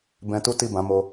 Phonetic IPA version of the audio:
b ɛ̃˧ t u˦ t i˦˨ b ã˨˦ m o˧

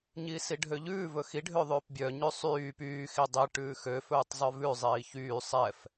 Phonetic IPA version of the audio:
ɲ iː s i ɖʱ ø ʎ ʉː v ɵ x i ɖʱ ø ðˤ øː p bʲ œ ɲ ʉ sˤ yː p yː x i dˤ i ʈ ʉː x ø f ɵː tˤ zˤ œ v ʉ zˤ iː ç yː sˤ ɛ f

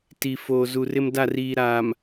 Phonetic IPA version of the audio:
t i˨ f oː˨ z u˨ r ɪ˦ m d a˦˨ r iː˨ ɾ aː˨ m

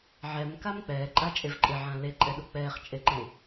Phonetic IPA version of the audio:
ʕ ɛ m k a m k͡p ɛː ǃʼ a t͡ʃʼ e v ǃʼ ɪ ʕ ã l e ǃʼ ɛ ɗ u k͡p ɛː χ t͡ʃʼ e ǃ ẽ

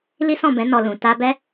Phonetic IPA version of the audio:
l i˦ s ɔ̃˦˨ b ɛ̃˨˦ n ɔ˧ l ũ˨ t a˧ b ɛ˦

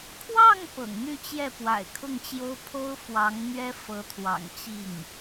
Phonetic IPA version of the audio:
kʰ w ɑ˥˩ ŋ p ɤ̰˨˩ ŋ n̪ y˥˧ t͡ɕ j ɛ˥˩ p w a̰˨˩ ɪ̯ kʰ ʊ˥˩ ŋ t͡ɕ j o˥ ʊ̯ pʰ o˥ ʊ̯ f w ɑ˧˥ ŋ n̪ ɥ ɛ˥ f ɤ˧˥ t̪ʰ w ɑ̰˨˩ ŋ t͡ɕ i˥˩ ŋ

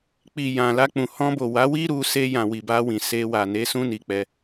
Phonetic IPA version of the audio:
k͡p i˨ j ã˨ l a˧ k͡p ũ˨ h ɔ̃˧ b o˨ w a˨˦ w i˦ ɾ u˧ s e˧ j ã˨ w i˨ b a˧ w ĩ˨ s e˧ w a˨ n e˨˦ s ũ˦ n i˧ k͡p ɛ˧

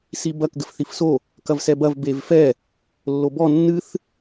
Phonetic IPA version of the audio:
s i b ɐ k ɡ ɘ f θ i f s o | k ɐ v s ɛ b ɐ v b e v f ɛ | lː o b ɔ nː ɨ θ

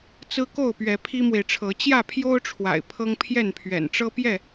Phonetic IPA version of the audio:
t͡s ɹ̩˦ k o˥˨ ʊ̯ p ɥ ɛ˨˦ pʰ i˦ m w e˨ ɪ̯ ʈ͡ʂʰ ɤ˨˦ t͡ɕ j ä˥˨ pʰ j o˦ ʊ̯ ʈ͡ʂʰ w a̰˨˩ ɪ̯ pʰ ɤ˦ ŋ pʰ j ɛ˥˨ n pʰ ɥ ɛ̰˨˩ n ʈ͡ʂ ɤ˦ p j ɛ˥˨

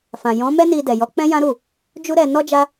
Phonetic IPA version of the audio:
f ã˨ j ɔ̃˨˦ m ɛ˦ n i˧ d ɛ˨ j ɔ˨˦ k͡p ɛ̃˦ j ã˦ ɾ u˦˨ | d͡ʒ u˦ ɾ ɛ˧ n ɔ˦ d͡ʒ a˦

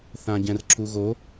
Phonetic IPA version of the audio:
θ ã ɟ ɛ̃ r ǁ u ɣ o

